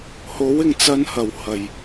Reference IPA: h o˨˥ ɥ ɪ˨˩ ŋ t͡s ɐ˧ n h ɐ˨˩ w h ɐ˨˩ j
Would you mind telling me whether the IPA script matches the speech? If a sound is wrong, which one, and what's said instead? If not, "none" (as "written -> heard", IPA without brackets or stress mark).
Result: ɥ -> w